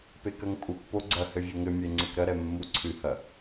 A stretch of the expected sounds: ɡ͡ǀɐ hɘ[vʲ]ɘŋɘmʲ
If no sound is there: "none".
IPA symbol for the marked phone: vʲ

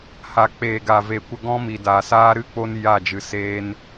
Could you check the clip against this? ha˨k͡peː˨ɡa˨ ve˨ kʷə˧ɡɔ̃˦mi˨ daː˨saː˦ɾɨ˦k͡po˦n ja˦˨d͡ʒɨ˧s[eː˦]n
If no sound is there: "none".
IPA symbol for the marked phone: eː˦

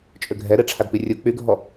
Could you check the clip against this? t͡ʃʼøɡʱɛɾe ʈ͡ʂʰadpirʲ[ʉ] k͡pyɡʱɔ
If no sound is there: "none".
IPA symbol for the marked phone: u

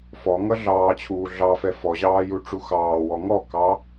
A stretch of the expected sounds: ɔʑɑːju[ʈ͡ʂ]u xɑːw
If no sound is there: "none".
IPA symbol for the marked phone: ʈ͡ʂ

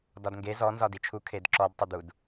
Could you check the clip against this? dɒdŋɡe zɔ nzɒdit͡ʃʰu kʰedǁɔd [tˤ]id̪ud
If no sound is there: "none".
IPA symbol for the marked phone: tˤ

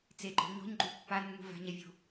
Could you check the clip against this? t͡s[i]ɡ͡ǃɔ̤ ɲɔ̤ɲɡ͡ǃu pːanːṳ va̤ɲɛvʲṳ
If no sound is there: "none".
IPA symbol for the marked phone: e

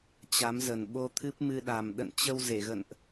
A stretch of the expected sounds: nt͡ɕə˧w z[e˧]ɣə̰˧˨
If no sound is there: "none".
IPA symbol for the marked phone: e˧˩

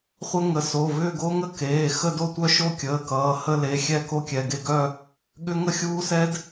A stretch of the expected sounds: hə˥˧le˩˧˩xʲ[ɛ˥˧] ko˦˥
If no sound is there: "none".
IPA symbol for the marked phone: ɛ˥˧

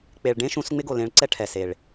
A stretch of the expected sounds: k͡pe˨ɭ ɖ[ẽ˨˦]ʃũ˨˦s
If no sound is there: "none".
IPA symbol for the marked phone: ẽ˦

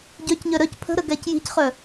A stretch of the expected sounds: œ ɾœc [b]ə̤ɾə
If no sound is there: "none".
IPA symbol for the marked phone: pʰ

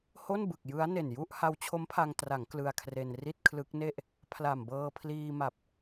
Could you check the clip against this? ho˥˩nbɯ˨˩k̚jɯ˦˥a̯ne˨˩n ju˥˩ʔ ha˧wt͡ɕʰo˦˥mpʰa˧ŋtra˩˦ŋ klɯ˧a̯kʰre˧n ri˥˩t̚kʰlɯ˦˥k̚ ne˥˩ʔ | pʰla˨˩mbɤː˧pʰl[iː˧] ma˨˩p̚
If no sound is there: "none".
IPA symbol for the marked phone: iː˧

